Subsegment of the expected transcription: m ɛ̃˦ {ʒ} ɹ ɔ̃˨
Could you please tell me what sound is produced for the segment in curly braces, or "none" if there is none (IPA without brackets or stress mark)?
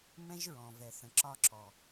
ʒ